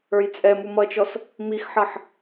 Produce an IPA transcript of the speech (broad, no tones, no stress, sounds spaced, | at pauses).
ə˞ j t͡sʼ ɛ m u m ʌ t͡ʃ ɔ s | m i x ħ ʌ ħ